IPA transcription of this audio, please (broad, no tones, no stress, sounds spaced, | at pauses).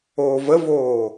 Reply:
oː v ə v oː